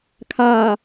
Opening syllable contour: low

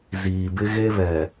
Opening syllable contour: low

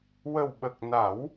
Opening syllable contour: low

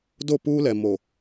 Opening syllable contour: falling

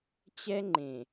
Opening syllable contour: high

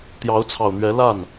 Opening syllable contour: rising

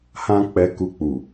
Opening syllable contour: high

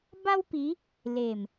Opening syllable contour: high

